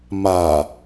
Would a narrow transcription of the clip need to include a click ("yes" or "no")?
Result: no